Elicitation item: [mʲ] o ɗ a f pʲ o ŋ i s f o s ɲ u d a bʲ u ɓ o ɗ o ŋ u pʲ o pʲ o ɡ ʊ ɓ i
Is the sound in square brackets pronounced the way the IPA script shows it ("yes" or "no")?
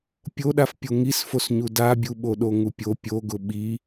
no